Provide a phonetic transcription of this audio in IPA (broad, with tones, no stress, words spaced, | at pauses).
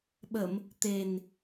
ɓə˨˩˨m | t̪e˨˩n